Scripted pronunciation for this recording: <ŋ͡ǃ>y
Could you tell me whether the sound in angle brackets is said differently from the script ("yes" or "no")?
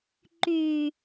yes